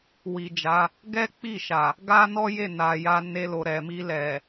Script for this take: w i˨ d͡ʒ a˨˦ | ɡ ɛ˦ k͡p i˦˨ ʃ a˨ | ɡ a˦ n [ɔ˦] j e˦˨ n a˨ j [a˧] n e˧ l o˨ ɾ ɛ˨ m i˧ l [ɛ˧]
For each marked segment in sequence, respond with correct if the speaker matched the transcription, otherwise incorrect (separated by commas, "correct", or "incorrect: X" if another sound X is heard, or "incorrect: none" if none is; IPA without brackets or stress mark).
correct, correct, incorrect: ɛ˨